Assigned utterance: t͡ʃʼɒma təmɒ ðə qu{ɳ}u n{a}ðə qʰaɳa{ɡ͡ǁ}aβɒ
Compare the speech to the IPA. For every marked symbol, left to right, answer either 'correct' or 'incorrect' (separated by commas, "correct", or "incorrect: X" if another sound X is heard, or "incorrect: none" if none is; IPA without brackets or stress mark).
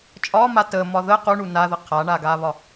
correct, correct, incorrect: ɡ